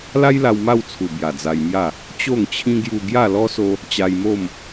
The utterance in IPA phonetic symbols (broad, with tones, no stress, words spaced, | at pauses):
la˦jla˧w ma˥˧wt͡sʰu˨˩ bja˨˩d͡za˧jmja˥˧ | t͡ɕo˥˧ŋt͡ɕʰĩ˦ ɡju˧ ɡja˥˧lɔ˦so˦ | t͡ɕa˧jmo˥˧m